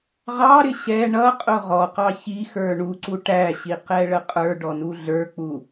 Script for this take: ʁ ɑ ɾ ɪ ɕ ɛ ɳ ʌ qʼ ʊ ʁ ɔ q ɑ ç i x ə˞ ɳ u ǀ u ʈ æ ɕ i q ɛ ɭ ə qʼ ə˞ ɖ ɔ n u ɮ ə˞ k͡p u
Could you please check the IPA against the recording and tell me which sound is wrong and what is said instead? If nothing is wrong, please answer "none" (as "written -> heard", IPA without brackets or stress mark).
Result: none